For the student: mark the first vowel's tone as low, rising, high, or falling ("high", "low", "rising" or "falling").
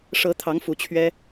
rising